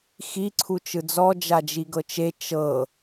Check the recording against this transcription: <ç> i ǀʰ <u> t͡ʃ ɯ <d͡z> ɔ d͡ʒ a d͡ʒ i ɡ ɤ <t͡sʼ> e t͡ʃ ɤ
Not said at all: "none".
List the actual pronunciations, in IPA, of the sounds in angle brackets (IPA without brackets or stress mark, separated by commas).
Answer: x, u, d͡z, t͡ʃ